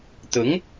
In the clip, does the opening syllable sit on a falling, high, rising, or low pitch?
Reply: rising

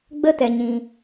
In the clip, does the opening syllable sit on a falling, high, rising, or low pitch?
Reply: high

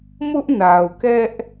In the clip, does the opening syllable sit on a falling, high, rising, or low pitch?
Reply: high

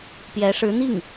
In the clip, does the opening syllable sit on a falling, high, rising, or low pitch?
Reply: rising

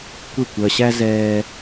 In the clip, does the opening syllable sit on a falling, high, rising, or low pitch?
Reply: falling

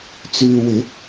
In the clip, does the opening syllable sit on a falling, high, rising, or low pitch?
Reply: low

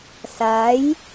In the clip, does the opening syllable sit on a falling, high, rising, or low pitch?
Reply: rising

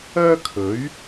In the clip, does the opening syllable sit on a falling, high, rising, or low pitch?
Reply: high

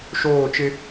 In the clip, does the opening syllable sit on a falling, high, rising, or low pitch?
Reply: falling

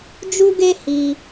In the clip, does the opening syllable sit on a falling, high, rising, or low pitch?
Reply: high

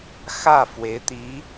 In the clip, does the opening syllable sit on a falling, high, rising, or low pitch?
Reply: falling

